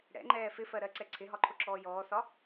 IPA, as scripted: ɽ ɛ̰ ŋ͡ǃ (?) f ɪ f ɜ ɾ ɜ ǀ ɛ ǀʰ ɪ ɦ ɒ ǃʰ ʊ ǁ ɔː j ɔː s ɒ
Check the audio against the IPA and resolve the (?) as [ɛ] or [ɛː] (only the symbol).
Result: ɛː